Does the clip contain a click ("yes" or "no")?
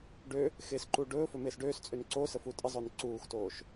yes